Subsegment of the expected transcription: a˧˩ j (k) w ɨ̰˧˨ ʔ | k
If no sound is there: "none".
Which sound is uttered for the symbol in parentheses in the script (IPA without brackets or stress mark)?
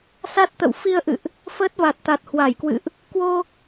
k